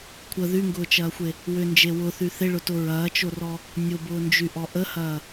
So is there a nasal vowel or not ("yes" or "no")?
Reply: no